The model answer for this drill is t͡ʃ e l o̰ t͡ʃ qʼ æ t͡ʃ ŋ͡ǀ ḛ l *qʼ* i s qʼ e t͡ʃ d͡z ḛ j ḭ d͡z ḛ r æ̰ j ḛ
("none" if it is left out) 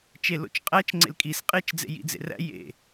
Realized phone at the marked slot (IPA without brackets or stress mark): kʼ